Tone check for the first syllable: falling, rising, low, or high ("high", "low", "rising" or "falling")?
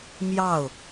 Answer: falling